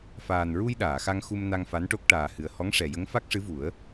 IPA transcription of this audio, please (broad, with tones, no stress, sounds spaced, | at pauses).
f aː˨˩ n ɹ u˧ j ɗ aː˨˩˨ x a˧ ŋ x u˧ m n a˧ ŋ f a˧˥ n ʈ o˦˥ k̚ ʈ aː˨˩ h ɨ˨˩ ə̯ h ɔ˧˥ ŋ ʂ ɛ˨˩ j ə˧˥ ŋ f a˦˥ k̚ ʂ ɨ˧˥ v u˨˩˦ ə̯